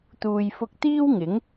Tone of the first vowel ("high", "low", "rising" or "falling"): low